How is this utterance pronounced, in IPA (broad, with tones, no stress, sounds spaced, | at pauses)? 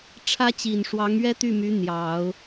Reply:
ʈ͡ʂʰ ä˥ t͡ɕ i˨˩ n ʂ w ɑ˧˥ ŋ ɥ ɛ˥ t̪ y˥˩ m y˧˥ n̪ j ɑ˨˩˦ ʊ̯